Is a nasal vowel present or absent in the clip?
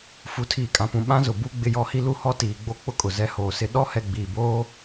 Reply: present